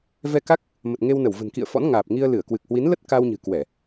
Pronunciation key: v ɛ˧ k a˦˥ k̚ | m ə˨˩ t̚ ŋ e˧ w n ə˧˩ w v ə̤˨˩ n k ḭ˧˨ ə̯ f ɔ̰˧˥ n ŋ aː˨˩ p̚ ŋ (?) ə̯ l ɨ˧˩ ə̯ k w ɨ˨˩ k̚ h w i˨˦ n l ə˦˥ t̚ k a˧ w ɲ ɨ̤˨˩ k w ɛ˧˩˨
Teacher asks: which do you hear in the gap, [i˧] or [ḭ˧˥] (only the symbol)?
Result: i˧